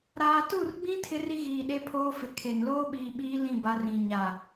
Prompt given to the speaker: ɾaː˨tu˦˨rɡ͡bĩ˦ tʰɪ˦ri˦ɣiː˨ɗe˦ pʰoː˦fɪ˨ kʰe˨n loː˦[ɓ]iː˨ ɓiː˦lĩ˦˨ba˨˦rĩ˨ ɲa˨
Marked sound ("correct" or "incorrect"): correct